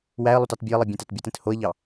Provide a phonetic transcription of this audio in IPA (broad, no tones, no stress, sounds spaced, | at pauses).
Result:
w æ ə̯ lˠ ø t ɑ t bʲ ø ə̯ lˠ e bʲ ẽ t æ t bʲ ɯ t ẽ t h o ə̯ ʎ ɑ